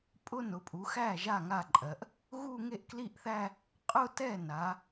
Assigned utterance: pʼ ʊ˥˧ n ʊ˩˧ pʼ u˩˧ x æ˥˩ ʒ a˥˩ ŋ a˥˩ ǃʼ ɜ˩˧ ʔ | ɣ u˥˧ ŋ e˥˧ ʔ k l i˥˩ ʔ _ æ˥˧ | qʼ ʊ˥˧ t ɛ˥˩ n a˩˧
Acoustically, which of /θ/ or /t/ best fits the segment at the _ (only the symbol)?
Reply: θ